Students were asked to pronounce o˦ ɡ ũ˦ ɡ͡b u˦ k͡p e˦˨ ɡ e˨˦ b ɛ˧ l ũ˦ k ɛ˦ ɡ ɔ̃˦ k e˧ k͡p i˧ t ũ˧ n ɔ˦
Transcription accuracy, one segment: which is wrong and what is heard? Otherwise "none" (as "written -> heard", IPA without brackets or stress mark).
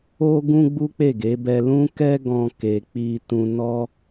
none